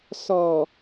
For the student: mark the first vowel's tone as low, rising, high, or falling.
low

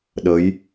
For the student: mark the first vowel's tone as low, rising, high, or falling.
rising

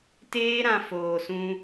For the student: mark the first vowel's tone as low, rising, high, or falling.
high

